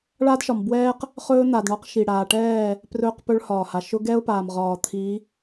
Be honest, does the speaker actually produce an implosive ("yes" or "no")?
no